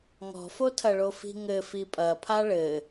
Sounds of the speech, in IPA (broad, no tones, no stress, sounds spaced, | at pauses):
ŋ ɔ̤ f o tʰ ɐ ɭ o f i̤ ŋ ɘ f i pʼ ɐ pʰ a ɭ ɘ